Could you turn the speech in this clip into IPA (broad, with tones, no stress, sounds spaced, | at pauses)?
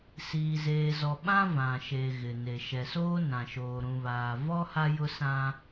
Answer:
s iː˨ z eː˨ z ɔ˨ ɓ ã˦ v ã˨ ʃ e˨ ɣ ɪ˨ n e˨ ʃ ɛ˨ s oː˦ n ã˨ ʃ oː˨ ɾ ũ˨ β aː˨ v ɔ˦ h a˦ j ʊ˦ s ã˦